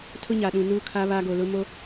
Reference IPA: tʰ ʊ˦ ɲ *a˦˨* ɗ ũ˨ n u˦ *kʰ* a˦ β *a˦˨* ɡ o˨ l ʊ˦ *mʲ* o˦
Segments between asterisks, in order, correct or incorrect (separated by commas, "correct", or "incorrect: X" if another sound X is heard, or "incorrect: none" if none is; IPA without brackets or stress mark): incorrect: a˨, correct, incorrect: a˦, incorrect: m